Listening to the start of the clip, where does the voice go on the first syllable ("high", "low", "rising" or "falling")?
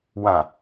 low